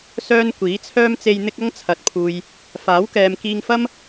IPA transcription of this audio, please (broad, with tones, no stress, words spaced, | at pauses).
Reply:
sœː˥n kʷiː˨˥t͡sʰœː˥mt͡se˧j n̪ɪ˥k̚ ɐ˥ŋt͡sʰɐ˨t̚pʰuː˨j | faː˨˥wkɛː˨m kiː˧ŋfɐ˥m